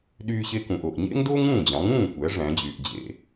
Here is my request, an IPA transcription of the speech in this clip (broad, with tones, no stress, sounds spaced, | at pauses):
ɗ yː˧ ɕ e˧ k ũ˩ ʔ o˩ ʔ ɲ ḛ˥ ŋ d oː˥ ŋ ũː˥˩ d͡ʑ ɑ̃˩˥ ŋ ũː˥˩ kʷ æ˩˥ ʐ æ̃˩˥ d͡ʑ yː˩ ʔ d͡ʑ ḛ˧